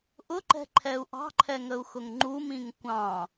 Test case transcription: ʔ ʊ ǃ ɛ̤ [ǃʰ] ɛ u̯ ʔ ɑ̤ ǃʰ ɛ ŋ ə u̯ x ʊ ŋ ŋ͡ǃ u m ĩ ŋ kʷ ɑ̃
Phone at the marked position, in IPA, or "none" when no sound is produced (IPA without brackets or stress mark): ǃʰ